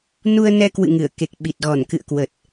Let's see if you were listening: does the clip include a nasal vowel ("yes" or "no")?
no